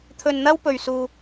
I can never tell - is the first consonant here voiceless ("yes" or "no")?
yes